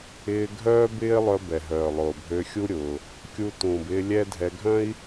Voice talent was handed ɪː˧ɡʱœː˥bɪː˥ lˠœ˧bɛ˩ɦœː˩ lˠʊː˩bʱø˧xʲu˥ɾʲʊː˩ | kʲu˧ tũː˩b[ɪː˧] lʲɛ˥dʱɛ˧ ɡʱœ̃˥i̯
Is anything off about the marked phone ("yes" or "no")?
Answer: no